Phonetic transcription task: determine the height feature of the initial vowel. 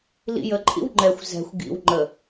high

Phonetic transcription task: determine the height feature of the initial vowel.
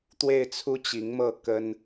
mid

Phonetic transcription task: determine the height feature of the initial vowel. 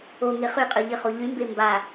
mid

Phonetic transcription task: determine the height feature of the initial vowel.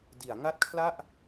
high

